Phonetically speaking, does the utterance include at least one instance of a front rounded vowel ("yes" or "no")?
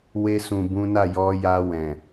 no